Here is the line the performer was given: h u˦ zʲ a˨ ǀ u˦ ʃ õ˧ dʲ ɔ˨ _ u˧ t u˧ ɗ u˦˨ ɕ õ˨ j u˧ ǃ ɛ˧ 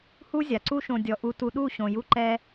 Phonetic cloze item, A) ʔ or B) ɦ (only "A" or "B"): A